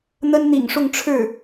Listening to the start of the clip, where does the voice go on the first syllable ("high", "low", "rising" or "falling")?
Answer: high